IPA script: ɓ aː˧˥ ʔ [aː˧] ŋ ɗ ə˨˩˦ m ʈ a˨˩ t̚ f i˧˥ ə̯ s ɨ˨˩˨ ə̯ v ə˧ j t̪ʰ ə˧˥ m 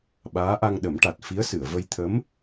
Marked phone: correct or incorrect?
incorrect: a˧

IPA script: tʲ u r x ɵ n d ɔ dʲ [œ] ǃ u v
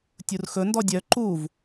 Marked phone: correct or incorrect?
correct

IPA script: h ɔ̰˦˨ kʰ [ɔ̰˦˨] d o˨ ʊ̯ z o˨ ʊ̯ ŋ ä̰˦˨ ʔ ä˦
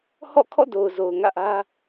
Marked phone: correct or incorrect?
correct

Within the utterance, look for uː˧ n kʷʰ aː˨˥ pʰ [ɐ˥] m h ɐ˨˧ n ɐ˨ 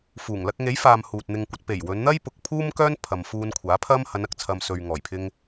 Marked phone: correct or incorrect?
correct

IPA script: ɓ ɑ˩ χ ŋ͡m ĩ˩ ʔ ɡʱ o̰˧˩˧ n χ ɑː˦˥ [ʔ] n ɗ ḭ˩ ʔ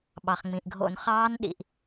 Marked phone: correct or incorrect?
incorrect: none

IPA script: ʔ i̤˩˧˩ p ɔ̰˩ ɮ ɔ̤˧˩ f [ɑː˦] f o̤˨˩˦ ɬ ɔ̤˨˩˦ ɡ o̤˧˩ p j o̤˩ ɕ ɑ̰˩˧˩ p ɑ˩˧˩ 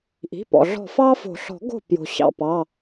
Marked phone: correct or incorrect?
correct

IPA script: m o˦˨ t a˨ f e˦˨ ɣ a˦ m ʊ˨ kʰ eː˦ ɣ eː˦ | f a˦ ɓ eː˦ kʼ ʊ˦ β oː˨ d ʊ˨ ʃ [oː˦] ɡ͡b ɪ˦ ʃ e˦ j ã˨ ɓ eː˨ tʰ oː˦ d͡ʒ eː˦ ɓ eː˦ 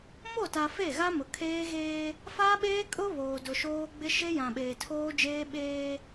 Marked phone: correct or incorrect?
correct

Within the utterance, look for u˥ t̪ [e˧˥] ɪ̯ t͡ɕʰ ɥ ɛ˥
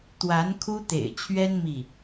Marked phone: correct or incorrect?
incorrect: ḛ˨˩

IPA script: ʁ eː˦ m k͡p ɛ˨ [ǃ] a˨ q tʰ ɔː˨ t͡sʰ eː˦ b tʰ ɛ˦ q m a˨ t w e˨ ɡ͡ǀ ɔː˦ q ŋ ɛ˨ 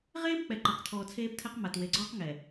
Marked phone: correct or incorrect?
correct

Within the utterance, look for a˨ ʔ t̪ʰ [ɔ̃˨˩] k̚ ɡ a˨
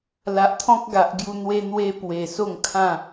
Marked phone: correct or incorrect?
incorrect: ɔ̃˦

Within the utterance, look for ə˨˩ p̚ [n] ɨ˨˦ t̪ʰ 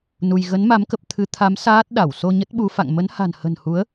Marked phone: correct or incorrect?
incorrect: t̪ʰ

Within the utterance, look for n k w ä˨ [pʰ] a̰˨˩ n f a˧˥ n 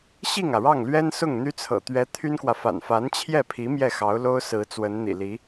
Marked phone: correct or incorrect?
incorrect: f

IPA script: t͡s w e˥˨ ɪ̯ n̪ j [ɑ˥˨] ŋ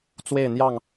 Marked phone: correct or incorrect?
correct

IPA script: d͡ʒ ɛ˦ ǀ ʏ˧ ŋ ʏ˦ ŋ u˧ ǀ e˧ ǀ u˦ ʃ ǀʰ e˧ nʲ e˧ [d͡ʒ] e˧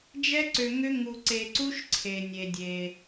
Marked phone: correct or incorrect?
incorrect: dʲ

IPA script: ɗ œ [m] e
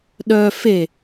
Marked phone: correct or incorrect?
incorrect: f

